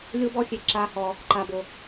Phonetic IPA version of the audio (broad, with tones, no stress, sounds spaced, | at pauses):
lʲ o˦ b ɔ˦ xʲ e˧ ǁ a˦ h ɔ˧ | ǃ a˧ b o˧